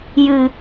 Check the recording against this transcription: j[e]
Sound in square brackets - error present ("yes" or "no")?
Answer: yes